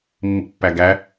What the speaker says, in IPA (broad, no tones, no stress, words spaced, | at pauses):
mːḭpːæɡæ